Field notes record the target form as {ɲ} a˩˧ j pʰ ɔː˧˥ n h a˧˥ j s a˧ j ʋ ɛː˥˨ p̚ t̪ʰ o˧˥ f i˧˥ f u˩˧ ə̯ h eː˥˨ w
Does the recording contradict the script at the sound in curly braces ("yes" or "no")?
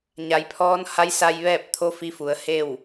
no